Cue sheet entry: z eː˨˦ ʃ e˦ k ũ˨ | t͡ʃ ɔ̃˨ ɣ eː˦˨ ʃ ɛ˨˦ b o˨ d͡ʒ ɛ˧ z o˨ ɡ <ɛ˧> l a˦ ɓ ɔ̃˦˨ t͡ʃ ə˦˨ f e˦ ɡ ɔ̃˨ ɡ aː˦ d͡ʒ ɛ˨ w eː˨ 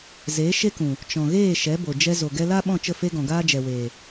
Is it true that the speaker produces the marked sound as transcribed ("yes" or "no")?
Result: yes